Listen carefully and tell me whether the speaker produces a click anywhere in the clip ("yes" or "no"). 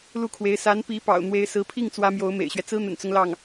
no